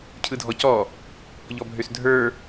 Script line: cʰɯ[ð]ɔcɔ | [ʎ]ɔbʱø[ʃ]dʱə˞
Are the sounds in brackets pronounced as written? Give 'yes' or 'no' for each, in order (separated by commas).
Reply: no, yes, no